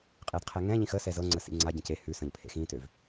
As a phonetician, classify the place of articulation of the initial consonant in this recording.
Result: uvular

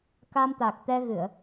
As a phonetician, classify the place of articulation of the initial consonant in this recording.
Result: velar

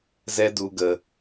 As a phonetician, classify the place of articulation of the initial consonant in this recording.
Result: alveolar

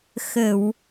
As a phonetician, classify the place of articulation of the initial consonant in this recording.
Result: velar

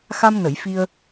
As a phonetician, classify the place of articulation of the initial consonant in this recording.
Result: velar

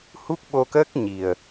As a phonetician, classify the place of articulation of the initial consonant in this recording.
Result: glottal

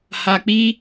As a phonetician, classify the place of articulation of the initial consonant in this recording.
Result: glottal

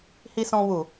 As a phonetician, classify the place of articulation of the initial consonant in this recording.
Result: glottal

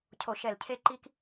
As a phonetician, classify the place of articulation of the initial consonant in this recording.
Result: palatal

